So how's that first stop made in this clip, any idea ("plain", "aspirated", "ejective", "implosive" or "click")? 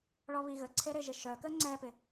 click